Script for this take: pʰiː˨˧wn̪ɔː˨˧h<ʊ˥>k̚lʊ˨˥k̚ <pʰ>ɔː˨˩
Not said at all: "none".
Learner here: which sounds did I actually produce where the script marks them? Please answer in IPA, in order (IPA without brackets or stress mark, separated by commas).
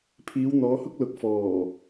ʊ˥, f